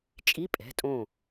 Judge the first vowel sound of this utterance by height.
high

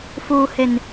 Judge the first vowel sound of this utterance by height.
high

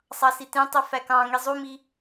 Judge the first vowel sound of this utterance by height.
low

